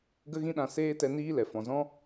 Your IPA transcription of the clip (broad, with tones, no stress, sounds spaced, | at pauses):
ɡ ə˦ ɣ ĩ˦ ɗ ã˧ s eː˦ t ɛ˧ n iː˦ l ɛ˨ f ɔ̃˨ z ɔ̃˦